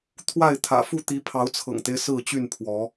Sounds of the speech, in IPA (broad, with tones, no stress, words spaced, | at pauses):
t̪ʰwa˥˨ɪ̯t̪ʰä̰˨˩fu˥˨ t̪i˨˦pʰɑ˨˦ʊ̯t͡sʰɤ̰˨˩ŋt̪e˦ɪ̯ sɹ̩˥˨t͡ɕy˥˨npʰwɔ˨˦